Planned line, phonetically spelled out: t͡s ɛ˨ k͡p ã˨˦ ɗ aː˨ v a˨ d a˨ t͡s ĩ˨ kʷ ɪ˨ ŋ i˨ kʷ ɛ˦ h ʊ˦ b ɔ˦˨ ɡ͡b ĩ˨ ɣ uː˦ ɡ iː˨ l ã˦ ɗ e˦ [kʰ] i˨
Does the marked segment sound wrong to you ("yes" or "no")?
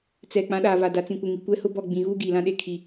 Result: no